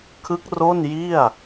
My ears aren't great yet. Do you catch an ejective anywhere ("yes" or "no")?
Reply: no